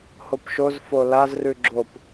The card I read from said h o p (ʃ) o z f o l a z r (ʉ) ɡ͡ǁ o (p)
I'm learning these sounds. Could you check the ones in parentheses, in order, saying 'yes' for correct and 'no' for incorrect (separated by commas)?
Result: yes, yes, yes